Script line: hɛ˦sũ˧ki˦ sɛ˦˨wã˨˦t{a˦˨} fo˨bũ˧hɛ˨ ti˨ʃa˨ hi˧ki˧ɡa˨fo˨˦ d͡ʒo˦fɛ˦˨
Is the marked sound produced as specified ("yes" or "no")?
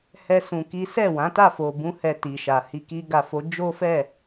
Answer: yes